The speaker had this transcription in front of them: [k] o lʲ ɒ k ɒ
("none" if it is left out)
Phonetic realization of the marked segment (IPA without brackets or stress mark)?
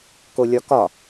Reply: k